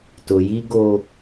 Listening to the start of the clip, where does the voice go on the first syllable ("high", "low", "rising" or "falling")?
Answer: low